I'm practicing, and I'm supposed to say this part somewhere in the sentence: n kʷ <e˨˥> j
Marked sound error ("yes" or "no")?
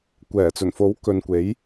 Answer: no